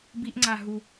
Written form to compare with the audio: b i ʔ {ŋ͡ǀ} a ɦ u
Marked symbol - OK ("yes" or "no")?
yes